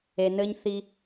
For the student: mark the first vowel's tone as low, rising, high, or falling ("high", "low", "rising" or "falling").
low